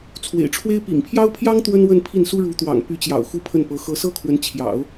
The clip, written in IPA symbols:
t͡sʰ w ḛ˨˩ ɪ̯ ʈ͡ʂʰ w e˥ ɪ̯ p ḭ˨˩ ŋ pʰ j ɑ˥ ʊ̯ pʰ j ɑ˥ ŋ t̪ w ə˥ n w ə˥˧ n pʰ i˥˩ n s u˥ ɻ u˧˥ t̪ w ɑ̰˨˩ ŋ p y˧˥ t͡ɕ j ɑ̰˨˩ ʊ̯ x u˥ pʰ ə˥˩ n p ɤ˧˥ x ɤ˧˥ s ɤ˥ kʰ w ə˧˥ n t͡ɕʰ j ɑ̰˨˩˦ ʊ̯

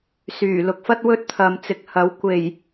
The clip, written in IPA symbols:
s yː˨˩ l ʊ˨˥ k̚ f ɐ˥ t̚ w ɵ˥ t̚ t̪ʰ ɐ˨ m t͡s ɪ˨ k̚ h ɐ˨˥ w kʷ e˨˩ j

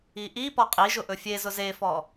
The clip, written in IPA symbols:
i ʔ i p ɔ qʼ i ʒ ʊ ʔ ɵ fʲ e z ʊ z e f ɔ

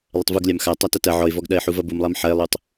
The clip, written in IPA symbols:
lˠ ɐ tˤ v u ɡ lʲ a m x a tˤ a t ɐ t ɐ ʕ ɔ ɪ̯ v ɔ ɡ ɗ ɐ ɪ̯ ħ u v ɐ b u m lˠ a m ħ ɐ ɪ̯ lˠ u tˤ

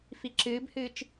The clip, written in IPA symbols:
f i ǁ ɨː b h ɨː t͡ʃ

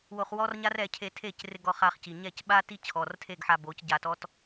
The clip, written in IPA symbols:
w o˧ χ w ɔ˦ r ɲ a˦ r ɛ˧ cʰ e˧ tʰ e˦˨ c r ɪ˧ ɡ ɔ˧ χ a˧ χ c i˨ ɲ ɛ˦˨ c ɓ a˦ t i˦ t͡ɕʰ ɔ˨ r tʰ e˦˨ ɡ ħ a˧ b o˨˦ c ɟ a˧ t ɔ˦ t

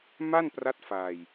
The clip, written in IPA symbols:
m a˥˩ n p r a˦˥ t̚ f aː˧ j

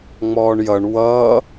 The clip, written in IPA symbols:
ŋ͡m ɔː ɳ j ʌ ɳ w ʌː

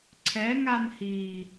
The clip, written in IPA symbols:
ǀʰ ɛ ŋ a n h i

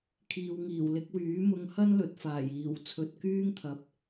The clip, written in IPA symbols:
kʰ iː˨ w ŋ iː˨˩ w l ɪ˧ k̚ w yː˨˥ m ʊ˧ ŋ h ɐ˥ n l ɵ˨ t̚ f aː˨˩ j iː˨˩ w t͡sʰ ɵ˨ t̚ k yː˥ ŋ t̪ʰ ɐ˨ p̚

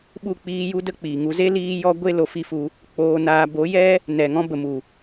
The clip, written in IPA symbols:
ɓ u˦˨ k͡p iː˧ j u˦ d ə˦ k͡p iː˨ ŋ u˧ z e˦ l iː˧ j ɔ˧ ɡʷ e˦ l o˧ f i˦ f u˧ | k͡p oː˧ n aː˧ b o˨˦ j ɛ˦ | n ɛ˨ ŋ ɔ̃˦ b ə˨ m u˨

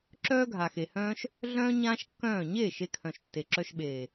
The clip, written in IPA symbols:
ǁ œː˦ ɡʱ a˨ x e˨ h œ̃ː˦ ʃ | ɮ œ̃ː˦ ɲ ãː˦ ʃ kː œ̃ː˦˨ ɲ eː˦˨ ʃ e˧ kʰ œ̃˨ ʃ tː e˨ ǁ œ˧ ʃ ɓ eː˨

